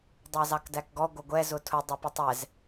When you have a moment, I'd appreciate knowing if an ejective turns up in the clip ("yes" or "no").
no